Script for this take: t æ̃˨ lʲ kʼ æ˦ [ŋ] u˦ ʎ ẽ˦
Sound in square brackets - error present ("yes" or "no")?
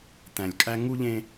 no